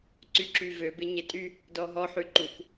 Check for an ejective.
present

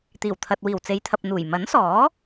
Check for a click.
absent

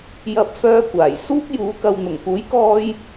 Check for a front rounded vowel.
present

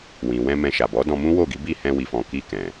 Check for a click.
absent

